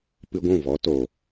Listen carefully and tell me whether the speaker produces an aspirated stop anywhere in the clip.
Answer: no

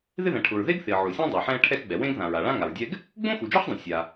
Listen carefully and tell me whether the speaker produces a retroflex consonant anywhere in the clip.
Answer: yes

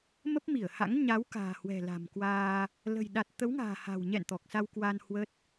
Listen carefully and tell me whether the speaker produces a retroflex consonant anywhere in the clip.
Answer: no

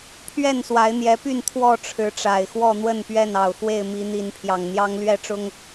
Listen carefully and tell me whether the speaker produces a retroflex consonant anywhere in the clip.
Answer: yes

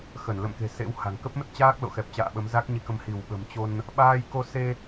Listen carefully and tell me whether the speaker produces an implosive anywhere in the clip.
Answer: yes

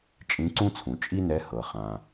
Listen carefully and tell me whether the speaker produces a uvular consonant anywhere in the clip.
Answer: yes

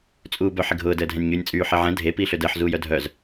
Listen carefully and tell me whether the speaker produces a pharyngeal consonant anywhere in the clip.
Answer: yes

